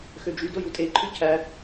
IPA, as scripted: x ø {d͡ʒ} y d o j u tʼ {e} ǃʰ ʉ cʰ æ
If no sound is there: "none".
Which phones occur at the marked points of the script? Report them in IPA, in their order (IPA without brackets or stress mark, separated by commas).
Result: d͡ʒ, e